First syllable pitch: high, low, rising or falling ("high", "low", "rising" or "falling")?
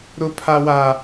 high